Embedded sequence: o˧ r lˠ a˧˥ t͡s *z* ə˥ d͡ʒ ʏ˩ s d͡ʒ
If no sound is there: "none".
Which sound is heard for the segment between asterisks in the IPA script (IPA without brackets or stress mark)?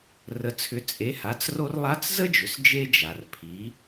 z